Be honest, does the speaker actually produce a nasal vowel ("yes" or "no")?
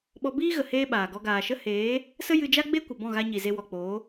yes